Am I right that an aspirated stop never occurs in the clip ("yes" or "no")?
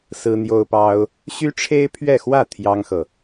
no